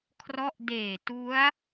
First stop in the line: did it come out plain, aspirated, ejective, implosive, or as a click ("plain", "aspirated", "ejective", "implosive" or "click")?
aspirated